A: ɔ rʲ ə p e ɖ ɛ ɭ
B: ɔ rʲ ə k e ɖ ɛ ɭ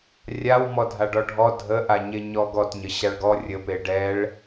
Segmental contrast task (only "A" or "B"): A